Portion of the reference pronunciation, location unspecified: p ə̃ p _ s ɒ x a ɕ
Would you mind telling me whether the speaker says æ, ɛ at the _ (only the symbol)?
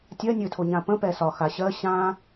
ɛ